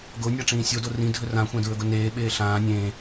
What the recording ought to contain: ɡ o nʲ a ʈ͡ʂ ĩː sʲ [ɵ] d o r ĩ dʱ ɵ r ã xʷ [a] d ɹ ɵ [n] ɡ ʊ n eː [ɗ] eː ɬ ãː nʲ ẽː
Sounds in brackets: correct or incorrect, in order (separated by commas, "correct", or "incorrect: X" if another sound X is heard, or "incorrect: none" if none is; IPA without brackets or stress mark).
incorrect: o, incorrect: ã, incorrect: none, incorrect: ɓ